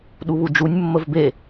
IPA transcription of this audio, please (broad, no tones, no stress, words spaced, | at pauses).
ɗuβud͡ʒunʲ mːəvbe